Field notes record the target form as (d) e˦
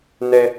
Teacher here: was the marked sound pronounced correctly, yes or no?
no